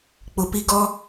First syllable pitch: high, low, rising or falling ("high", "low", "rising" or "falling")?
low